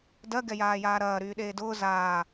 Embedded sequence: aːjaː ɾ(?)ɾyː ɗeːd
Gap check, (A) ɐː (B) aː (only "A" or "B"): A